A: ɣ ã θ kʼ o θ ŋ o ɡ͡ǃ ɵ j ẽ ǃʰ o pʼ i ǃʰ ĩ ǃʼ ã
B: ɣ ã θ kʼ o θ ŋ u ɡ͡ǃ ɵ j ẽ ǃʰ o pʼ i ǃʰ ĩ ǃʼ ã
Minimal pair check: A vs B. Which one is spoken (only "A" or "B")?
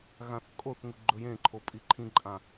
B